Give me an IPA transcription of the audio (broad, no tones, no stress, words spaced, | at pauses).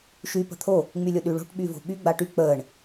ʃy pə̤t̪ʰo | ŋ͡mylʲʊɗyɭo̤ʈ ɓyvo̤ɓy ɡ͡baʈy k͡pəːɳ